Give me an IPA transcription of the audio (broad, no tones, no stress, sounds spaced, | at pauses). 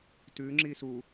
t ʉ ŋ͡ǁ i s u